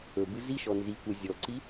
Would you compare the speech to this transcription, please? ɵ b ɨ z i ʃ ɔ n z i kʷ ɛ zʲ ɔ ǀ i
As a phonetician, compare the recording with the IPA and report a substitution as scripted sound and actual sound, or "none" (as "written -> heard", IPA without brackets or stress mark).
none